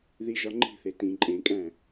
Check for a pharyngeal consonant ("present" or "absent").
absent